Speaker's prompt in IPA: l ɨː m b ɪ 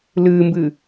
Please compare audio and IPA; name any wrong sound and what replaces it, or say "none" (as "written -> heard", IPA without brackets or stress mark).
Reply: ɪ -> ɨ